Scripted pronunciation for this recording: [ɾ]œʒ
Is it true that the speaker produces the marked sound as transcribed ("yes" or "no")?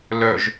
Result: no